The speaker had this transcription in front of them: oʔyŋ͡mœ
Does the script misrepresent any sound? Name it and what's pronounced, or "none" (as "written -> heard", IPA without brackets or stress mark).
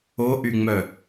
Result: none